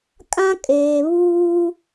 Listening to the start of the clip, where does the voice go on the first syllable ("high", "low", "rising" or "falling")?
high